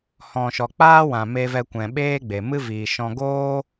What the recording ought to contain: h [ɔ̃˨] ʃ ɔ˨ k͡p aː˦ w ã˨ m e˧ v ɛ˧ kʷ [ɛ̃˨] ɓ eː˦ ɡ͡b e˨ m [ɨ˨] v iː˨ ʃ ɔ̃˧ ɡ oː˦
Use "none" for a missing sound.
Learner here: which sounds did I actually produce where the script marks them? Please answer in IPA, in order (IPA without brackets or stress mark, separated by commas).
ɔ̃˨, ɛ̃˨, ɨ˦